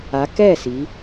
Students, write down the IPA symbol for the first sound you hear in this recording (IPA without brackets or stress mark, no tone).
a